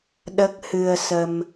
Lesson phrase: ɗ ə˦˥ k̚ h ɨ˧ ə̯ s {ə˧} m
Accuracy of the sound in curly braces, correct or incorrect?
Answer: correct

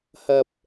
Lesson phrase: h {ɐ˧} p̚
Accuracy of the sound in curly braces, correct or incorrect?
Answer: correct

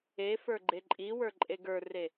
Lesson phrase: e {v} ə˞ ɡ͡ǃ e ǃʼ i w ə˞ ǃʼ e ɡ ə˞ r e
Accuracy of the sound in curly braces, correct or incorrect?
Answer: incorrect: f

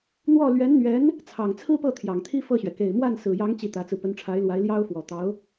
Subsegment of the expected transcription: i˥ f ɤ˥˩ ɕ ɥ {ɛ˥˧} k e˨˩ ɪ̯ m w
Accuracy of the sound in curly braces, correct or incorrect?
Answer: incorrect: ɛ˩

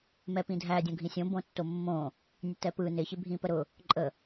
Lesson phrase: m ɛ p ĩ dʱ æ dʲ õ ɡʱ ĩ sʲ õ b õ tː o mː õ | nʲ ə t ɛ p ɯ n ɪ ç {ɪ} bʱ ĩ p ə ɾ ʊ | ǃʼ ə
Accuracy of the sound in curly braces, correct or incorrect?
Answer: correct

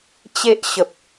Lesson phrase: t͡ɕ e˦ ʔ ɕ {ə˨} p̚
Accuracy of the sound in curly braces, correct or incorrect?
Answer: correct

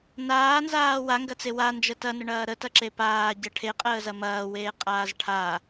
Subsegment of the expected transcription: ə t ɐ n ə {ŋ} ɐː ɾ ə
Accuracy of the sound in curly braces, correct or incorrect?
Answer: incorrect: ɳ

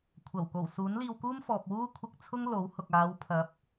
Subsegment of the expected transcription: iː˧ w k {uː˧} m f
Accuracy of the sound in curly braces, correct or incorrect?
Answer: incorrect: uː˥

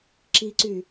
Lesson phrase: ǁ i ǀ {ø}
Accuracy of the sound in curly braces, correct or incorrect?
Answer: incorrect: y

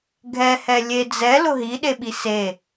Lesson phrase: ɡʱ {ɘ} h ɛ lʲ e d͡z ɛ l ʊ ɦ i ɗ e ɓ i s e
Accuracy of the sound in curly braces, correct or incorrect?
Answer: incorrect: ɛ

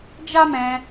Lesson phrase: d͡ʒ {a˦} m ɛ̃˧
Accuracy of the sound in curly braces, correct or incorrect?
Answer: correct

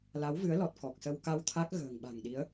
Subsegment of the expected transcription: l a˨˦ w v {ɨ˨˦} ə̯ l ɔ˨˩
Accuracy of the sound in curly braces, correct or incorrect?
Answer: correct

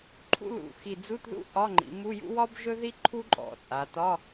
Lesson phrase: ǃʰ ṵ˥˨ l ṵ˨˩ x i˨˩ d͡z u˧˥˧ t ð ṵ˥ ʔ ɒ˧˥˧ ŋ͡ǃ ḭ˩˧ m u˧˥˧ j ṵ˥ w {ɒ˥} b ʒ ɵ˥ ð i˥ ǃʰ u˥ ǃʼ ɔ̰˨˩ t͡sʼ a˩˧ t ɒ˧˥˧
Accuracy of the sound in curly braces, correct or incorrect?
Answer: correct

